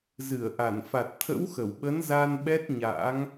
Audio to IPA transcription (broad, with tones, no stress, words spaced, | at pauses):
zɨ˧˩ə̯ʔa˧˩n fa˨˩t̚t̪ʰə̰˧˥w xə˧˩wɓə˨˦n za˧nɓɛ˦˥t̚ ɲa̰˧˥ŋ